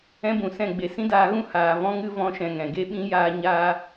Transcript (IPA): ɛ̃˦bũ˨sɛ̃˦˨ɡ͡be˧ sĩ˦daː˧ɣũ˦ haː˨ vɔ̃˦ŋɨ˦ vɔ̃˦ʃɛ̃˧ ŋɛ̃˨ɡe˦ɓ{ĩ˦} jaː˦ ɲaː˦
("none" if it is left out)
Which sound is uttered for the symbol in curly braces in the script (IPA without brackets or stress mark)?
ĩ˦